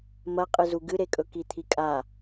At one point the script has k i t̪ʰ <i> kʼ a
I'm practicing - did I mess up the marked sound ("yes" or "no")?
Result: no